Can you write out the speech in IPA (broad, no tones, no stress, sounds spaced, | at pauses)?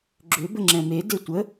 ɡ͡ǁ ʏ b ə ŋ͡ǁ ɛ̃ m e d e tʷ ə